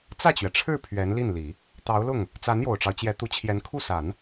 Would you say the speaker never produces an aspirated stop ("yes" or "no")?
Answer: no